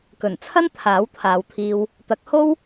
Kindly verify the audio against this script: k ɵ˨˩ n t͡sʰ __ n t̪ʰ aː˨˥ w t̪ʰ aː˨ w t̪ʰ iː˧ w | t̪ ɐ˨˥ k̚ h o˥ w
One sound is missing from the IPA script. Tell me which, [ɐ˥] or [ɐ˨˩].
ɐ˥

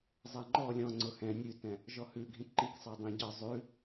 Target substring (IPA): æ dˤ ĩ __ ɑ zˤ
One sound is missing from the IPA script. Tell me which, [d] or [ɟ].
ɟ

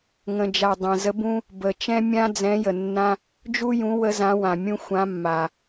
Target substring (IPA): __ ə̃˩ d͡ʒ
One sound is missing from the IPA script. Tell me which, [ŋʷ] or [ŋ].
ŋ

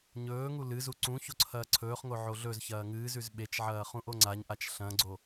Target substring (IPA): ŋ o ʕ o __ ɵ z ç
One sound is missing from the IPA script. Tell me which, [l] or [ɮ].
ɮ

